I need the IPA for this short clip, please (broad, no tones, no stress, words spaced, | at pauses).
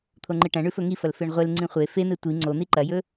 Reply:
t̪ʰoŋ͡ǃɨʈɐ̃ ɳʉfɵŋifɐl feɳʁʷel ŋ͡ǀĩχʷe fe n̪etʷi ŋ͡ǀo n̪iǃɐjɵ